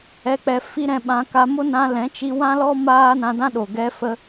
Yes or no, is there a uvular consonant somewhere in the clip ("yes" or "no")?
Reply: no